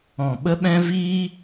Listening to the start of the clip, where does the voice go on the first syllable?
low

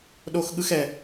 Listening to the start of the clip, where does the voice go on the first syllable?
high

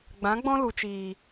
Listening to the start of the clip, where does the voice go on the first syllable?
rising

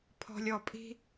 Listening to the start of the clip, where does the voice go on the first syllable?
high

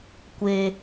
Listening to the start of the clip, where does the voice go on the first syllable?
high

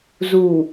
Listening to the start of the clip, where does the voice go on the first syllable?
low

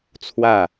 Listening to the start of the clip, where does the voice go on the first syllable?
falling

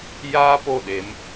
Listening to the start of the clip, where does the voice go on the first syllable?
high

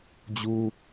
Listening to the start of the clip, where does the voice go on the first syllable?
high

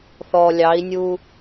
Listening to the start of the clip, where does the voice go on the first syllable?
low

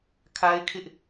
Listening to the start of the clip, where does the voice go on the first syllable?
high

